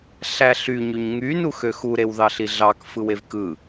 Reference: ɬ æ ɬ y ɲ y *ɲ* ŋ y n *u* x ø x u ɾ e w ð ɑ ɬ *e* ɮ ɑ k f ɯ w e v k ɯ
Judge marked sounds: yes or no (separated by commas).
yes, yes, no